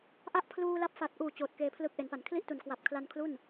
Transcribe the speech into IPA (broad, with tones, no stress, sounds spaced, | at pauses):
ʔ a˦˥ ʔ pʰ l uː˧ l a˦˥ p̚ f a˨˩ t̚ ʔ uː˨˩ t͡ɕ oː˨˩ t̚ k eː˧ pʰ l ɯ˦˥ k̚ ʔ e˩˦ n p a˩˦ n kʰ l i˥˩ ʔ t u˨˩ n k w a˨˩ p̚ kʰ l a˧ n kʰ l u˥˩ n